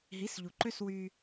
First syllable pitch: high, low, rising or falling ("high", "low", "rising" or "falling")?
rising